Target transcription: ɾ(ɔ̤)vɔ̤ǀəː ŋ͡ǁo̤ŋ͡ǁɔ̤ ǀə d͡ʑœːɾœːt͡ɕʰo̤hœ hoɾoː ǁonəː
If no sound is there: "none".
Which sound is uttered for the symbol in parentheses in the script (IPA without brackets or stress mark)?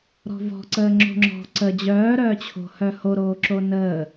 ɔ̤